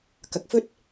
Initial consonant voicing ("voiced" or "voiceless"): voiceless